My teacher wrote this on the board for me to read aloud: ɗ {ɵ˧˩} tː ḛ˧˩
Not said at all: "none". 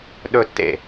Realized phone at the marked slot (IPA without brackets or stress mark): ɵ˥˧